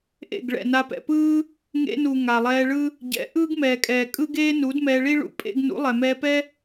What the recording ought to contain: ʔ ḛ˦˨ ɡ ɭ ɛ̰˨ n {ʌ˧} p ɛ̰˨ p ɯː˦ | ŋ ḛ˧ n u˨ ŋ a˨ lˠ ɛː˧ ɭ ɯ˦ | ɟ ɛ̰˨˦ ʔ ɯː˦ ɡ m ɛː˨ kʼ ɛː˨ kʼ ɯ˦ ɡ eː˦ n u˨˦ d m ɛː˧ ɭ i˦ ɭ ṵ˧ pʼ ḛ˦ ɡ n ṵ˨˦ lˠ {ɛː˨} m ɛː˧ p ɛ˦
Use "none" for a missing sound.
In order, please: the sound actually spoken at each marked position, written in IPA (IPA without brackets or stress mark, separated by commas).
a˧, ɛ˨